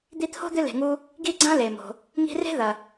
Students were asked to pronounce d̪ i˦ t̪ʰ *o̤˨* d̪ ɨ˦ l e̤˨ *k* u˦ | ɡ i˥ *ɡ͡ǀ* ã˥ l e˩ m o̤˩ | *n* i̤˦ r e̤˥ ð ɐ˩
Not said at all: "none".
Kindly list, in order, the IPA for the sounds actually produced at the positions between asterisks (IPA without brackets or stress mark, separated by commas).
o̤˥, ŋ, ɡ͡ǀ, ŋ